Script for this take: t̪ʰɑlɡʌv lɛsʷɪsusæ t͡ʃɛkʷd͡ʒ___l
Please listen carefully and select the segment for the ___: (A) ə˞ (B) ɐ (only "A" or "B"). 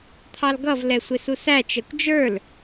A